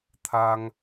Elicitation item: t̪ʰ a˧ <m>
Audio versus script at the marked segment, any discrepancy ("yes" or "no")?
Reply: yes